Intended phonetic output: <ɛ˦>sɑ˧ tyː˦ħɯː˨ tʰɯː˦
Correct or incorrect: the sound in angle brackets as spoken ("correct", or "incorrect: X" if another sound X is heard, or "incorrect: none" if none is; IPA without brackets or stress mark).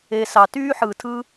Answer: incorrect: e˦